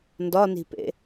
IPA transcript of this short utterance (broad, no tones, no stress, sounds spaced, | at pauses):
n d ɒ n i̤ p ḛ